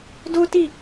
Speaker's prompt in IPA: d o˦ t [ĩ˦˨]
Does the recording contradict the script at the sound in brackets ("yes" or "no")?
yes